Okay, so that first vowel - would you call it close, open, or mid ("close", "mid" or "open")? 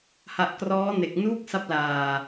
open